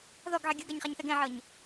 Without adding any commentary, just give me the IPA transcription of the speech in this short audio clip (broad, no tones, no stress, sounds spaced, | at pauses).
ð ɔ ɡ ʕ e ɡʲ ɯ ɡ a ɲ χ a ɲ θ ɛ ɡ ɛ̃ ʕ ɤ ɲ